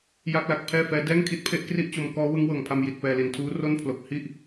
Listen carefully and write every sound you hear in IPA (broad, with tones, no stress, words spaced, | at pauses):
ja˥˩k̚la˦˥k̚pʰɛː˥˩fɛː˦˥ dɛː˥˩ŋkʰi˦˥t̚pʰe˥˩ʔ kri˥˩ʔt͡ɕo˧mkɔː˦˥ wɯ˦˥ŋwɤː˨˩ŋpʰa˧m ji˨˩t̚pɛː˧li˨˩n tʰuː˦˥ro˥˩npʰlo˨˩k̚ hi˥˩ʔ